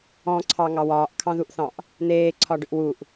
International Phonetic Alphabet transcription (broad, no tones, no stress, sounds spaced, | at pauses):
ɔ̃ ǀʰ ɑ ŋ ɑ w ɒː ʔ kʰ ɑ̃ ð u ʔ θ ɑ̃ ʔ | n̪ eː ǀʰ ɒ ɖ ʏ ʔ w u ʔ